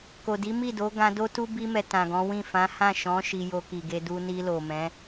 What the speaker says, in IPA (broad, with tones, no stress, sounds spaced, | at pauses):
k o˨ d i˨˦ m i˦˨ d o˨˦ ɡ ã˧ d o˦ t u˦ b i˧ m ɛ˨ t ã˨ ɡ ɔ̃˨˦ w ĩ˦˨ f ã˨˦ h ã˦˨ ʃ ɔ̃˨˦ ʃ i˧ j o˧ k i˨ ɡ e˧ d u˧ n i˧ l o˨ m ɛ̃˨˦